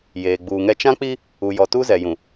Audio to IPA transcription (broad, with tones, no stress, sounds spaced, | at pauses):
j eː˨ ɡ͡b uː˨ ŋ ɛ˦ t͡ʃ ã˦ k͡p i˦ | u˨ j ɔ˨ t u˦ z ɛ˨ j ũ˨